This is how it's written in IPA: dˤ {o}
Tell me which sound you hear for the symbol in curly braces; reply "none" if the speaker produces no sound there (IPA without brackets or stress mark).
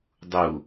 u